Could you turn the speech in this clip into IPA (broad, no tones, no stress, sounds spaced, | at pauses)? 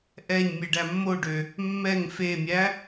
ʔ ɛ ɲ mʲ e ɖ æ mː o ɖ ø | mː ɛ ŋ f e mʲ æ